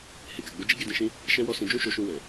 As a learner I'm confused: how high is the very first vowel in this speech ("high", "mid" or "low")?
mid